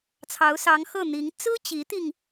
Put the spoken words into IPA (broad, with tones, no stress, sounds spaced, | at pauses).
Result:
t͡sʰ ɑ˧˥ ʊ̯ s ɑ˧˥ ŋ x ɤ˥˩ n̪ i˧˥ ŋ t͡s ɹ̩˥ t͡ɕ i˧˥ t̪ i˧ ŋ